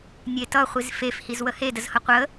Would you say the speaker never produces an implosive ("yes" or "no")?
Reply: yes